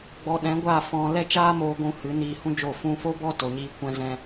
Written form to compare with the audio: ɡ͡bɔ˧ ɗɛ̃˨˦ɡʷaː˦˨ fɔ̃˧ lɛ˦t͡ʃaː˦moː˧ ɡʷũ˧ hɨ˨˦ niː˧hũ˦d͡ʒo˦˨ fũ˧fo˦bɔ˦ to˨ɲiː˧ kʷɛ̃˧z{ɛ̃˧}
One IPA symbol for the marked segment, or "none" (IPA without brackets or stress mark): ɛ̃˧